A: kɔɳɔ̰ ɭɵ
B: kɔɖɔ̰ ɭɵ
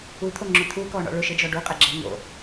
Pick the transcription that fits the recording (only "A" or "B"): A